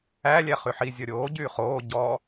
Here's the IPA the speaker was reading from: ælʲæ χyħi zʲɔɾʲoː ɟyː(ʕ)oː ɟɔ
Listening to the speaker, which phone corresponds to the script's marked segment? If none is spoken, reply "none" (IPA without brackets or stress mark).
χ